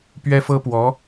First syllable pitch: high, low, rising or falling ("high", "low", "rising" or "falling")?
high